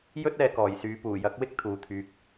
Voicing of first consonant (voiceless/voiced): voiced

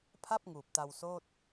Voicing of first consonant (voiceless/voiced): voiceless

